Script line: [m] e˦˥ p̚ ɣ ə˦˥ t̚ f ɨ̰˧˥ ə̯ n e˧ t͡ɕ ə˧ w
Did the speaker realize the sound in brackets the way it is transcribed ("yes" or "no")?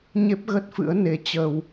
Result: no